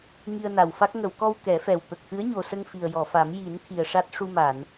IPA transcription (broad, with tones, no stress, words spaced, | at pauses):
ŋi˧ə̯na˨˩wfa˦˥k̚ ŋə˨˩˨wkɔ˧w kɛ˨˩˦fɛ˨˩w t̪ə˨˩k̚ t̪ɨ˧˥ə̯ɲo˨˩sə˧ŋ fi˨˩ə̯jɔ˨˩˨fa˨˩˦m ji˨˩˦n t̪ʰi˨˩ə̯ʂa˦˥t̚ ʂu˧ma˨˩˨n